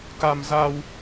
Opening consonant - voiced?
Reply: no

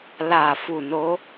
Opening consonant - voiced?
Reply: yes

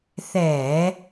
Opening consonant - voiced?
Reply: no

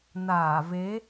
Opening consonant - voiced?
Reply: yes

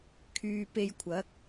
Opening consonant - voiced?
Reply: no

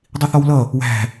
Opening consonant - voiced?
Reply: yes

